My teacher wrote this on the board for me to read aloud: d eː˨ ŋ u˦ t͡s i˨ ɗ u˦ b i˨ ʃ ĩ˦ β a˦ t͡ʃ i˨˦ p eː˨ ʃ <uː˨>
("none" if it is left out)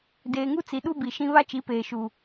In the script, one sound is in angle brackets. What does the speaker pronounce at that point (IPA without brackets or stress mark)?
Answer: u˨